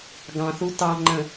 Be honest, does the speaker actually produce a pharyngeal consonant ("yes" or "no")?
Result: no